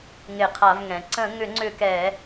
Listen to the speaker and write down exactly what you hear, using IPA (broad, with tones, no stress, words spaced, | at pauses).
ŋɪ˧˩˧qʰa˧˩˧vŋɛ̃˩˧ ǀə̃˧˩˧ŋʏ˧˩˧ŋ͡ǀʏ˧˩˧ kɛ˧˩˧